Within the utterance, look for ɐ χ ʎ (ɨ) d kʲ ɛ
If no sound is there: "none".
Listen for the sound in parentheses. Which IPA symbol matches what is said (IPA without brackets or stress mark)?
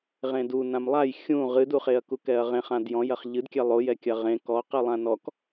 ɨ